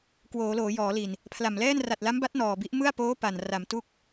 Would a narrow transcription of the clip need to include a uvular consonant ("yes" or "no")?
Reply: no